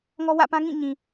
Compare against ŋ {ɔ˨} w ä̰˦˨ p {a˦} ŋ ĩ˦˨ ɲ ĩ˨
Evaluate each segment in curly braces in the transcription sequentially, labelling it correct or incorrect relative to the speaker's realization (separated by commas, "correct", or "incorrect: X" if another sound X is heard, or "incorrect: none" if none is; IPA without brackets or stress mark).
incorrect: ɔ˦, incorrect: ã˦